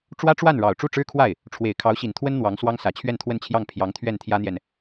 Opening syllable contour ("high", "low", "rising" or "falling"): high